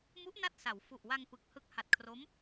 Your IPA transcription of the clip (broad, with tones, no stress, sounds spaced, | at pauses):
m u˦˥ ʔ n a˥˩ t̚ s a˩˦ w f u˨˩ ʔ w a˧ ŋ p ɯ˨˩ k̚ h ɯ˨˩ k̚ h a˨˩ t̚ kʰ r o˦˥ m